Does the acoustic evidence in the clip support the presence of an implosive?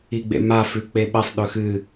yes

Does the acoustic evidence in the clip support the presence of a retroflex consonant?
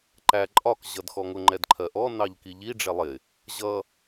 yes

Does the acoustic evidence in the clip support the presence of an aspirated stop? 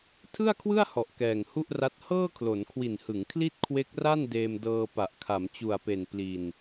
yes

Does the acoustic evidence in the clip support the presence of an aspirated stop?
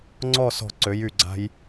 no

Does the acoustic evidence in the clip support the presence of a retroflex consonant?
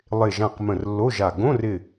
no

